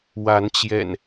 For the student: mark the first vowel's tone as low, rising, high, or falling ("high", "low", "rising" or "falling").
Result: rising